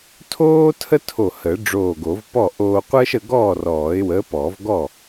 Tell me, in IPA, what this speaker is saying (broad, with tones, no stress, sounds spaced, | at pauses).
tʰ oː˥ tʰ ə˥ tʰ o˧˩ h ə˨˩˦ ɖ͡ʐ oː˧˩ ɡ o˨˩˦ v p ɔ˥˩ ʔ oː˧ qʷ əː˥ ʃ ə˧ ɡ ɔː˥˩ r ɔː˨˩˦ ɪ̯ w əː˨˥ p ɔ˨˩˦ v ɡ ɔ˥˩